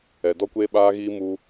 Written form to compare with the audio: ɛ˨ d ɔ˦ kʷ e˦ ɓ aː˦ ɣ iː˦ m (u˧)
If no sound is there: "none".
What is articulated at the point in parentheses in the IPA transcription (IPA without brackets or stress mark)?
u˧